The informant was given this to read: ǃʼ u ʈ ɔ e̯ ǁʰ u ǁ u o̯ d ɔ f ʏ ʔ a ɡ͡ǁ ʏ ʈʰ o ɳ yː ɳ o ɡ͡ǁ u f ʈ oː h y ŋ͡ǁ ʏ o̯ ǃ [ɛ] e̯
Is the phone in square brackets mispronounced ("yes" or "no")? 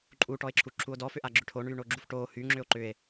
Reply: yes